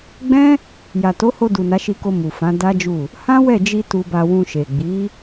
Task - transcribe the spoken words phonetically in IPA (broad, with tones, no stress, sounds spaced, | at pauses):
ɡ͡b ɛ̃˦ | j a˨ t o˨˦ h o˧ d u˨ n a˨˦ ʃ i˧ k o˧ m u˨ f ã˨˦ d a˦ d͡ʒ u˦˨ | h ã˦ w ɛ˦˨ d͡ʒ i˧ t u˧ b a˧ w ũ˧ ʃ e˨ ɡ͡b i˨˦